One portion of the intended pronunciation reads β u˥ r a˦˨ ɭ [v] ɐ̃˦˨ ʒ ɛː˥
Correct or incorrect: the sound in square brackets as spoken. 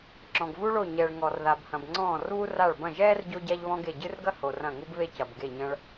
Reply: incorrect: b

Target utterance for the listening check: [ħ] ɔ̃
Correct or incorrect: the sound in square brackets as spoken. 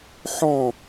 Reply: correct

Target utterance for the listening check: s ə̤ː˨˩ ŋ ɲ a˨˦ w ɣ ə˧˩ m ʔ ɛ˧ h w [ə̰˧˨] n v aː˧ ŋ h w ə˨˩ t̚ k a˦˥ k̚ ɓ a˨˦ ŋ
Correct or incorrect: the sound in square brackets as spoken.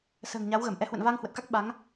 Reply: correct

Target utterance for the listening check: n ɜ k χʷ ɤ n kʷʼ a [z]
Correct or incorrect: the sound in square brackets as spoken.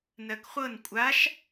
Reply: incorrect: ʃ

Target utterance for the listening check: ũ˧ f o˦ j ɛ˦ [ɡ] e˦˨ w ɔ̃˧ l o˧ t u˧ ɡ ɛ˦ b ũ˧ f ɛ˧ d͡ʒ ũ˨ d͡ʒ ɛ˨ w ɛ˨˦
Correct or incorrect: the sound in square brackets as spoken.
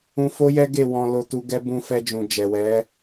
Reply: correct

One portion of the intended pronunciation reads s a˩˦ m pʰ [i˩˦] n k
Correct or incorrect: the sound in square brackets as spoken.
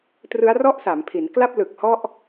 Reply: correct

